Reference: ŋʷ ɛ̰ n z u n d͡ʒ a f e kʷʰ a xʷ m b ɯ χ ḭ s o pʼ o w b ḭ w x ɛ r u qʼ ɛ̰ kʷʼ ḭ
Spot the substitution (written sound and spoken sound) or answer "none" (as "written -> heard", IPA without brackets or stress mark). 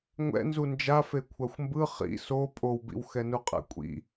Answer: r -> n